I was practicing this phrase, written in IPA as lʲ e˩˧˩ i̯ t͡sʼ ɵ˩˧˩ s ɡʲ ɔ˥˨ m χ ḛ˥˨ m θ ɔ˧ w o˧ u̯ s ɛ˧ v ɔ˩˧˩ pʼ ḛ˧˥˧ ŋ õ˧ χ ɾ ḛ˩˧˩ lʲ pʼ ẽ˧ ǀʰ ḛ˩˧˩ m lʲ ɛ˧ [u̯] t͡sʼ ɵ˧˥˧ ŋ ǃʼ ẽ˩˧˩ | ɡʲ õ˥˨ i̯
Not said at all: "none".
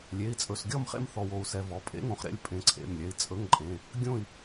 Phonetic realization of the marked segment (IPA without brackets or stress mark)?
i̯